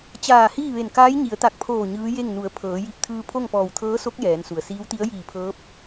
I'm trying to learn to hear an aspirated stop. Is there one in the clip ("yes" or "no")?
yes